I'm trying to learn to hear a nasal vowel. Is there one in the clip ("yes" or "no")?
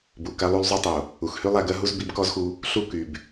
no